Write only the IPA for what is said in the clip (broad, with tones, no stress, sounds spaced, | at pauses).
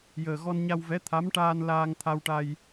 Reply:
j əː˨˩ ɣ ɔ˧ n ɲ a˧ w v ɛ˧˥ t̪ʰ a˧˥ m ʈ aː˧ n l aː˧ ŋ t̪ʰ a˧ w ʈ a˧ j